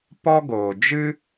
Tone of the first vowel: high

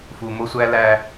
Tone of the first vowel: low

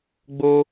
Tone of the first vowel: high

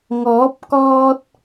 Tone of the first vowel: rising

